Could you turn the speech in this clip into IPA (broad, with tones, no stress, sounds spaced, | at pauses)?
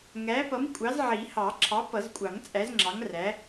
ŋ æː˨˥ p ʌ˨˥ m kʷʼ ɑ˨˥ z ʕ i˨˩˦ h ɑ˨˩˦ ǁʰ ɑ˨˥ p ʌ˨˩˦ z kʷʼ ɑ˨˩˦ ŋ t͡sʼ æ˨˥ z ŋ͡ǁ ɑ˨˥ ŋ r æ˨˥